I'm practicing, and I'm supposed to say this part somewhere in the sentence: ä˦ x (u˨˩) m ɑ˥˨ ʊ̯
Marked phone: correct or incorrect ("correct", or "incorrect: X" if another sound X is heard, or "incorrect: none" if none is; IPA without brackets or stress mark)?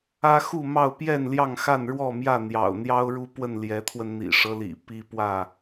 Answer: incorrect: u˥˨